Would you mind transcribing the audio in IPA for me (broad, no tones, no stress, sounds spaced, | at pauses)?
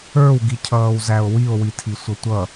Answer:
ə˞ w ɡ i cʰ ʌː w z æ o̯ w i o̯ w i tʰ i sʷ ʌ tʷ ʌ